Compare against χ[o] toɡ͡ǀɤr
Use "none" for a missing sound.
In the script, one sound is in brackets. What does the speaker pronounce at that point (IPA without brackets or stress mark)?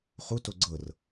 u